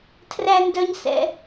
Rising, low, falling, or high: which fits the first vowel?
high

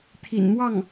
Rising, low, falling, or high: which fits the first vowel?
low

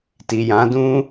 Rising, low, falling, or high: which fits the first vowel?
low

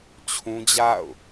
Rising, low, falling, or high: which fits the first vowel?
high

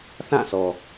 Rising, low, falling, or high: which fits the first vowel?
falling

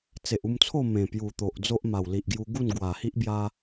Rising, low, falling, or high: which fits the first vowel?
low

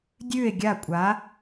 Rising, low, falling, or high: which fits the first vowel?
falling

